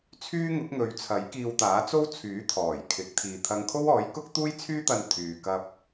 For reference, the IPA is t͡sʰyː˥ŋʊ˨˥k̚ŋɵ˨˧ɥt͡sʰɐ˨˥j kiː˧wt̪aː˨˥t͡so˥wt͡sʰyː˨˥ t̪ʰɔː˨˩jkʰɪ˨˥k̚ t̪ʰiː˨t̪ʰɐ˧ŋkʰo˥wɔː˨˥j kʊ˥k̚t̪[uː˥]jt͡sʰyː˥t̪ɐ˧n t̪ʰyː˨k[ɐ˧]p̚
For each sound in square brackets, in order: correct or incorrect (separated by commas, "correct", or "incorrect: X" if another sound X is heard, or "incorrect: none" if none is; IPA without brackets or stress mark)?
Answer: correct, correct